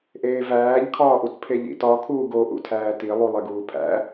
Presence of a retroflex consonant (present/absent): absent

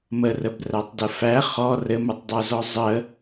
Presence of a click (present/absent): absent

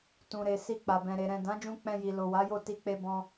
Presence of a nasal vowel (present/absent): present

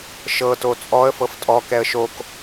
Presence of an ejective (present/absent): present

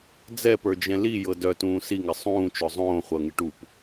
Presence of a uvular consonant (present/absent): present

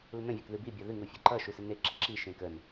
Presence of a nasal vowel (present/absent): present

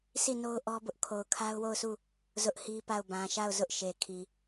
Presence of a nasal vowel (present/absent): present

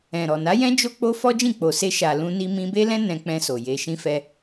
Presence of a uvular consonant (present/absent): absent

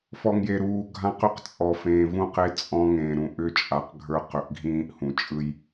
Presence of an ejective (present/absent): present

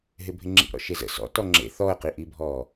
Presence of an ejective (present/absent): absent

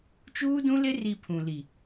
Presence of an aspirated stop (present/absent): present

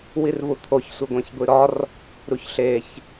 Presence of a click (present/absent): absent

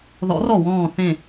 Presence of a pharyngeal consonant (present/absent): absent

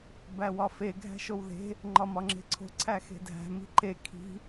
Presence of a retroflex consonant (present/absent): absent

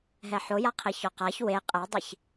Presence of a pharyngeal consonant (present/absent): present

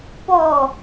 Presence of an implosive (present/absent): absent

